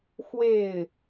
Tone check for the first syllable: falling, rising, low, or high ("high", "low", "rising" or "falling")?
falling